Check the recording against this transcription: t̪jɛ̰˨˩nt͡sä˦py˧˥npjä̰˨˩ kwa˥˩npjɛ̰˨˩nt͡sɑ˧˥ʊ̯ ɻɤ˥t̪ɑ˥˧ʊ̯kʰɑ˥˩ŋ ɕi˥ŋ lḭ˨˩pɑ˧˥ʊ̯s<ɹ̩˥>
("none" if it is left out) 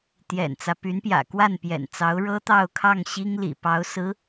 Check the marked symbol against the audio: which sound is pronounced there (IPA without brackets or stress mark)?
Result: ɹ̩˧˥